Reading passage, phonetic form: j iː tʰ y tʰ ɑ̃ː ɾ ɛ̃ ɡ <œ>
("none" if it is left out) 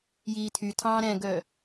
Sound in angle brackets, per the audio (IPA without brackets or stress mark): œ